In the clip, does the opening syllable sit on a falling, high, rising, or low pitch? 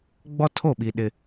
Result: high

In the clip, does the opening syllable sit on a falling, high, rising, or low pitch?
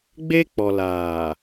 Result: high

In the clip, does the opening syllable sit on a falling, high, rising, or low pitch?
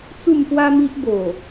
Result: falling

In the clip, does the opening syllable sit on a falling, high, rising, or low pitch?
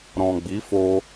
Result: low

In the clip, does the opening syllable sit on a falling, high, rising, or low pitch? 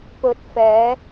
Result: low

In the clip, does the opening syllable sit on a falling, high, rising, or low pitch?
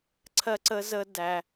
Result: high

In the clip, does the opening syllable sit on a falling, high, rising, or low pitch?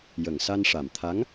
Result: low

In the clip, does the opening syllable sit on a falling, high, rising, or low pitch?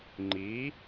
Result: rising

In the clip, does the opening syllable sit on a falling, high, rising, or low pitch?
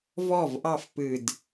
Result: falling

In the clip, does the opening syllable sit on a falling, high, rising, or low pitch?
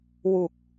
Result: low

